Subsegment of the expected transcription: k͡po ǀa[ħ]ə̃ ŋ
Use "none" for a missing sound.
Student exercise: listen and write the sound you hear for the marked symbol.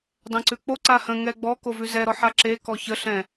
h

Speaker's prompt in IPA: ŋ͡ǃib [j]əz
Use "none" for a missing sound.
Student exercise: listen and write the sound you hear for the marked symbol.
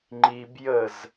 j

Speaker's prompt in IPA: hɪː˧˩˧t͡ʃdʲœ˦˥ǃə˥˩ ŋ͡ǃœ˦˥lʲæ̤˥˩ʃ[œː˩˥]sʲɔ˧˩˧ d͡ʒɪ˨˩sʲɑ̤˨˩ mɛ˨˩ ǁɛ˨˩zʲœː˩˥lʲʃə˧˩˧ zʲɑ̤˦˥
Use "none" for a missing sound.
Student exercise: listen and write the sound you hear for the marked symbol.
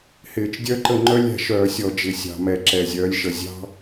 œː˧˩˧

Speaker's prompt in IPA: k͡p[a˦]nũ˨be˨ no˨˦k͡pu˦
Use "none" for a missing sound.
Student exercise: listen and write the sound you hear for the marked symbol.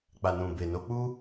a˨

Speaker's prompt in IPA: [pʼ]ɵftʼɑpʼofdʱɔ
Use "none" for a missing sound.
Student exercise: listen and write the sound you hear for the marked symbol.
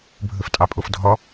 bʱ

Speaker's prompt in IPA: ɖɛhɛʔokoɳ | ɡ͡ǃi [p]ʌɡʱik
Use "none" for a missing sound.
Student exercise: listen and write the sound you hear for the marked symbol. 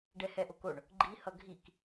h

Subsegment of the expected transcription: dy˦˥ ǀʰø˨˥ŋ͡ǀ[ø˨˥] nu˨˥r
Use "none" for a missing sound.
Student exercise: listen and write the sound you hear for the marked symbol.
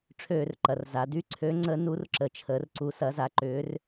ə˨˥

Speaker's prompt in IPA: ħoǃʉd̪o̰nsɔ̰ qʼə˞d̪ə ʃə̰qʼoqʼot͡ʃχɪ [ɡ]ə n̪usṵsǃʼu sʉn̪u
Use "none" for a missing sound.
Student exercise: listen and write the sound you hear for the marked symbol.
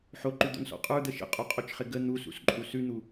ɡ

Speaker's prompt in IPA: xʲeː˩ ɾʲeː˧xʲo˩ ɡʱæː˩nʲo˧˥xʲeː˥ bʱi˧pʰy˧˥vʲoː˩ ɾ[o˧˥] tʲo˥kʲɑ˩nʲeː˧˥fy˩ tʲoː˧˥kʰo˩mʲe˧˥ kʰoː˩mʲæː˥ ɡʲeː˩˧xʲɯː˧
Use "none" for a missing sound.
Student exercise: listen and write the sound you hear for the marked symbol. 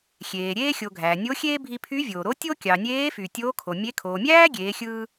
o˧˥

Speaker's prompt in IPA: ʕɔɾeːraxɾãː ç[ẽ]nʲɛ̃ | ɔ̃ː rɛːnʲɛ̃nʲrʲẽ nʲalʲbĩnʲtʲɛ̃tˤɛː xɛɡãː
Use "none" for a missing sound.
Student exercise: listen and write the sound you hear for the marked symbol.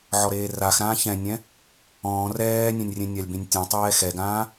ɛ̃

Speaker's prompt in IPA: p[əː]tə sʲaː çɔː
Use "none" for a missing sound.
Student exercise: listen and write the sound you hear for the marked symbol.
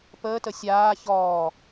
əː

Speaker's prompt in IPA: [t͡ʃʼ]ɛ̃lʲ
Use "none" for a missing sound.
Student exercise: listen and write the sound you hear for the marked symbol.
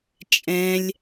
t͡ʃʼ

